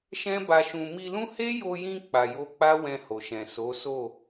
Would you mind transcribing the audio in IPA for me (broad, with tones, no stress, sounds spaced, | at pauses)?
ʃ ɛ̃˦ b a˧ ʃ ũ˧ m i˧ l ũ˦ h e˦ j o˧ j ĩ˧ k͡p a˨ j o˧ k͡p a˦ w ɛ̃˧ h o˨ ʃ ɛ̃˨ s o˨˦ s o˦˨